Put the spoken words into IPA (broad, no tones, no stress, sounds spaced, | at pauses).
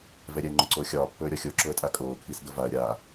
v ɛ ɾʲ ɛ ŋ͡ǃ ʊ ǀ oː xʲ ɒː pː ɵː ɾʲ ɒ xʲ o ǁ ʊ ə̯ tʼ a kʼ oː kʰ i s d ʊ v a ə̯ ɾʲ a